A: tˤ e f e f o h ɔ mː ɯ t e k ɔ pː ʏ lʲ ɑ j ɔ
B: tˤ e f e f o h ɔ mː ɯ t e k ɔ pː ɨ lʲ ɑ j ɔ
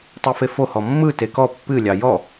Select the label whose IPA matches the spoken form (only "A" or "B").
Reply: B